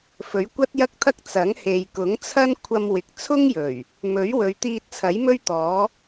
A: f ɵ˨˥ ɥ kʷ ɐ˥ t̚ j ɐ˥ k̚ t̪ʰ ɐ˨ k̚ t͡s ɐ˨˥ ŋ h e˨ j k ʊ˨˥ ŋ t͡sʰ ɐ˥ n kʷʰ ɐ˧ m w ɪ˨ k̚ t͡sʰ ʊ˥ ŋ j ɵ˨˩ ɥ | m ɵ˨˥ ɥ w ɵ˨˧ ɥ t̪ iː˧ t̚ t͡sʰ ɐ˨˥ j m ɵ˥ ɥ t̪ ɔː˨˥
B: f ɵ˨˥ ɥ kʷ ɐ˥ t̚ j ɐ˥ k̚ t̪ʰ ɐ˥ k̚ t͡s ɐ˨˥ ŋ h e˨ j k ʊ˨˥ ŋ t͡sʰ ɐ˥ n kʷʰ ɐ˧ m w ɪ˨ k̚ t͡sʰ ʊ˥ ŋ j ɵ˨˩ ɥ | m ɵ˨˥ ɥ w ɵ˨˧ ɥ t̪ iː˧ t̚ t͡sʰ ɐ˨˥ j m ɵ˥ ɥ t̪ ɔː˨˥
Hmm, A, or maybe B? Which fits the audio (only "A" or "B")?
B